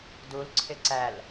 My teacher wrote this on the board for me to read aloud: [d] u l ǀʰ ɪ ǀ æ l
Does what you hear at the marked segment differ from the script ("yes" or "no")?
no